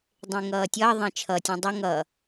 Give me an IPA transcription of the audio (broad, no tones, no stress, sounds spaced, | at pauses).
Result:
dˤ ẽ ŋ ʌː tʲ ʌː ðˤ ẽ t͡ʃʰ ʌ tʲ ũ dˤ ʌ ŋ ʌ